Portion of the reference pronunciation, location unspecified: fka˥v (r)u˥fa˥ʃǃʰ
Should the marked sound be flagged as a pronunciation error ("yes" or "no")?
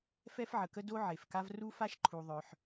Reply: no